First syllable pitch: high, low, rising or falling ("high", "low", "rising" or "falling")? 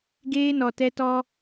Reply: high